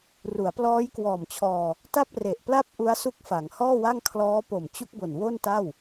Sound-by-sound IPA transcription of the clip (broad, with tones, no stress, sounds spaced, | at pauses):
r u˩˦ a̯ p l ɔː˦˥ j k w ɔː˨˩ m t͡ɕʰ ɔː˧ | t a˥˩ p̚ r e˨˩ ʔ p l a˥˩ p̚ ʔ u˦˥ a̯ s u˦˥ k̚ f a˩˦ ŋ h ɔː˥˩ w a˥˩ ŋ kʰ l ɔː˦˥ p o˨˩ m t͡ɕ u˦˥ k̚ b o˨˩ n w o˥˩ n t a˥˩ w